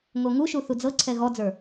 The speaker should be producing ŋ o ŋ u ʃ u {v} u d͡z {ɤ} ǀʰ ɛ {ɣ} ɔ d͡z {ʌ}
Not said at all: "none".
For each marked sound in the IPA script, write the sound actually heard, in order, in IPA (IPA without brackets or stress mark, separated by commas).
θ, ɤ, ɣ, ə˞